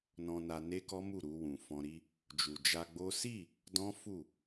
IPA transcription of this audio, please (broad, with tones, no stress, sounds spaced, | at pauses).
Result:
n ɔ̃˧ n a˧ n e˦ k ɔ˦ m u˦˨ ɾ u˧ w ũ˨ f ɔ̃˧ ɾ i˧ | d͡ʒ u˨ d͡ʒ a˧ ɡ͡b o˦ s i˦˨ | d ɔ̃˦ f u˦˨